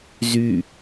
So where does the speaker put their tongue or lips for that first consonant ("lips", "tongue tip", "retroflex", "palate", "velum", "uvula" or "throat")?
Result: tongue tip